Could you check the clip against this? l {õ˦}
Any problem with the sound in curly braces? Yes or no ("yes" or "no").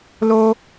yes